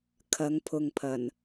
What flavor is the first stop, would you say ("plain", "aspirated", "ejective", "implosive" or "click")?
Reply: aspirated